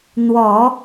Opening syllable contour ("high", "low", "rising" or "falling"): low